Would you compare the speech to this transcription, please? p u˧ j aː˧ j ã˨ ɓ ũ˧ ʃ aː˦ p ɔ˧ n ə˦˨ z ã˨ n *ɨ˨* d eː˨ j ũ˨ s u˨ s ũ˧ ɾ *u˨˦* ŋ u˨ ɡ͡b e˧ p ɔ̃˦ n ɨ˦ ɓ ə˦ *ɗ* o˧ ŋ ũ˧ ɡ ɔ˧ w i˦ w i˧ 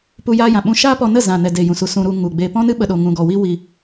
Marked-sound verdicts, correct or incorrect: incorrect, incorrect, correct

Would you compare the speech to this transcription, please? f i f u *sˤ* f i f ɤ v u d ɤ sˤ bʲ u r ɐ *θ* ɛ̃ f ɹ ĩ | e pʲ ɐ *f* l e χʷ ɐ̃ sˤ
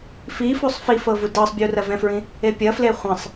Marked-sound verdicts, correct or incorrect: correct, incorrect, correct

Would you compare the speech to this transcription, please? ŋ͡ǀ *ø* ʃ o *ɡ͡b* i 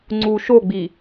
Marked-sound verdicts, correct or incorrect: incorrect, correct

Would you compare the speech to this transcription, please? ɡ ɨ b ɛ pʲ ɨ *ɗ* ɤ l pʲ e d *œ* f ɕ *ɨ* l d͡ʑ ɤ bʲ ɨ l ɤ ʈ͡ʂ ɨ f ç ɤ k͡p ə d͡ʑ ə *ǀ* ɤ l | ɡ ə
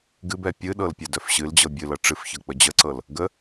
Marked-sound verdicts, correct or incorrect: correct, correct, correct, correct

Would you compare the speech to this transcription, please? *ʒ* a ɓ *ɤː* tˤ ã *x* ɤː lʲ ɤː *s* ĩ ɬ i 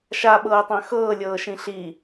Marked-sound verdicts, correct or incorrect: incorrect, correct, correct, incorrect

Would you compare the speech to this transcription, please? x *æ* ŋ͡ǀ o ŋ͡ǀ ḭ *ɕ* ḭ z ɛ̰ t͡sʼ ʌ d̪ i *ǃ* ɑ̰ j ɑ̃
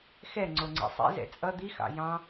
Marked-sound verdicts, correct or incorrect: incorrect, incorrect, incorrect

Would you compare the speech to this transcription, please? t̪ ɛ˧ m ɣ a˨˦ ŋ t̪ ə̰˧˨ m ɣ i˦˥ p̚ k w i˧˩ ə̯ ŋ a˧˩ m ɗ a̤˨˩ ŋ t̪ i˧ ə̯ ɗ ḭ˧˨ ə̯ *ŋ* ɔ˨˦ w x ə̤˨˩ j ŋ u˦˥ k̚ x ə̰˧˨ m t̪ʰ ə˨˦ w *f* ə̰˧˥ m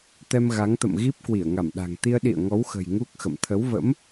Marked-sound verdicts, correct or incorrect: correct, incorrect

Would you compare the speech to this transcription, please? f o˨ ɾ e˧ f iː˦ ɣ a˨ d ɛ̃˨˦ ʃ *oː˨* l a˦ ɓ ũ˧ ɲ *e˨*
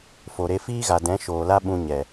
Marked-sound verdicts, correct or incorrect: correct, incorrect

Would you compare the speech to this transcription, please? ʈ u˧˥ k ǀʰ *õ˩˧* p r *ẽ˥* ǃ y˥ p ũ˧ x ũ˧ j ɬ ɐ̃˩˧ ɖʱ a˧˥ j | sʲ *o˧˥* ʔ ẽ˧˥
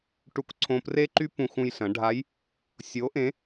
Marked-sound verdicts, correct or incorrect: incorrect, incorrect, correct

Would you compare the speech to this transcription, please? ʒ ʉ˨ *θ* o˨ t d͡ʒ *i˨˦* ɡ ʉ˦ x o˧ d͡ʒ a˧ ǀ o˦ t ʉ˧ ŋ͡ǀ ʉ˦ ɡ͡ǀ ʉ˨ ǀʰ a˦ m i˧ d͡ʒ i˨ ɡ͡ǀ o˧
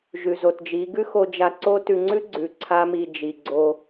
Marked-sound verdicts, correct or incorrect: incorrect, correct

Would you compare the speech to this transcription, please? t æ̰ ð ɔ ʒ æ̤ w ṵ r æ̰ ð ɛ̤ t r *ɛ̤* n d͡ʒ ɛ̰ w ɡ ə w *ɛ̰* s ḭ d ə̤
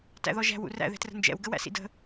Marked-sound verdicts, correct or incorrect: incorrect, incorrect

